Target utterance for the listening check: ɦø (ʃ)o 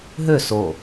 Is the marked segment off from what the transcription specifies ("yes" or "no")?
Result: yes